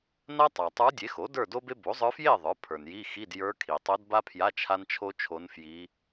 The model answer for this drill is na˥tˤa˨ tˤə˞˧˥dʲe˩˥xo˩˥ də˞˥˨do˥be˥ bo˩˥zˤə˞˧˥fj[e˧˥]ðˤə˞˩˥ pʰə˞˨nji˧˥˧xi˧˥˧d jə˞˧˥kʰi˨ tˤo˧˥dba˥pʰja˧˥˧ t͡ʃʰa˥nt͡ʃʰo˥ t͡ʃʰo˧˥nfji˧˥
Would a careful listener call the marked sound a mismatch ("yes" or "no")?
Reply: yes